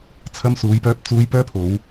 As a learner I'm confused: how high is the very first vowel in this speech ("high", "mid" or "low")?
low